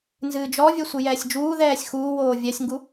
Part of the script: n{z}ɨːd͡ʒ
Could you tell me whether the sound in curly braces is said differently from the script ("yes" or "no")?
no